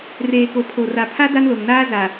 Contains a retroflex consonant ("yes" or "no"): no